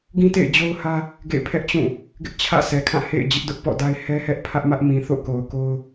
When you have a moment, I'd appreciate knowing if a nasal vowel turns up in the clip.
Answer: yes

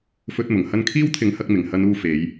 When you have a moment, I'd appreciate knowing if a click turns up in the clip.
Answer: no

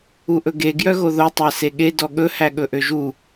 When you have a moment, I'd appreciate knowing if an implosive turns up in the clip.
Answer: yes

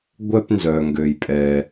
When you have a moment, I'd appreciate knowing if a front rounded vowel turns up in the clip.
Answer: yes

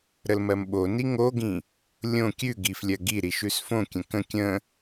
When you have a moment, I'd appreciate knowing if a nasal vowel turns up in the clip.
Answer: yes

